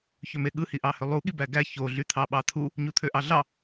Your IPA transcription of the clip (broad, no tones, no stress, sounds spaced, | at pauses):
ç ø m e ɠ ɯ h i ʔ ɑ h ø lˠ u ɠ i b æ ɡ æ ç o ɮ y t̪ʰ ɑ ɓ ɑ t̪ʰ u | ɲ u t̪ʰ ø ʔ ɑ ɮ ɑ